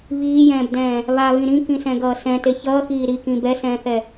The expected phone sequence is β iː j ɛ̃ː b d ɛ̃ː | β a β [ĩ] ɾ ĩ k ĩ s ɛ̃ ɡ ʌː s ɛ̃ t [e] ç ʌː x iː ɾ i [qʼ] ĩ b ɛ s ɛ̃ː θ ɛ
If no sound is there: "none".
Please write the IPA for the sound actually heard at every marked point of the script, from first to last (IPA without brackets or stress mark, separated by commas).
ĩ, e, k